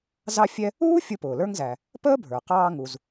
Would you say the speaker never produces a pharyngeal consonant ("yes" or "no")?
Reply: yes